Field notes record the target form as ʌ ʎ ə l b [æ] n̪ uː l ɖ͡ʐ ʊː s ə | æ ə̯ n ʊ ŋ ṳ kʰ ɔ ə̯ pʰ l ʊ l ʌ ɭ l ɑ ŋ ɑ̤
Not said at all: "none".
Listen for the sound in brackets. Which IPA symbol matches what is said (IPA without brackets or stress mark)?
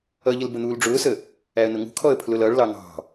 ə